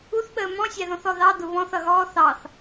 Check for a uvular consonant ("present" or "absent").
absent